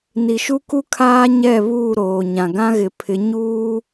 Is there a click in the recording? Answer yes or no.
no